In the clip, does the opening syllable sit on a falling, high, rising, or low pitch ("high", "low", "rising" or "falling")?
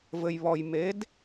low